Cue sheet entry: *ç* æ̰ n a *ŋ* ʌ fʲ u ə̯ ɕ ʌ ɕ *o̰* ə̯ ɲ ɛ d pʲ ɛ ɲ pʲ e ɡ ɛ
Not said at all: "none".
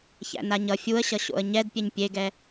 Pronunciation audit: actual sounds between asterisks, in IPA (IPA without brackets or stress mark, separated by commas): ç, ɲ, o̰